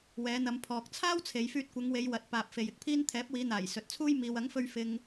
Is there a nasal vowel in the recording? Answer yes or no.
no